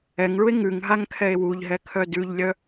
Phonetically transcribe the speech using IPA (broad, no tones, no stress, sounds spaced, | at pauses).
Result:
ɛ ŋ ɭ u e̯ ŋ ʉ ŋ ɦ a ŋ kʰ ɛ e̯ w u ʎ ɦ ɛ kʰ œ d ʉ ʎ lʲ œ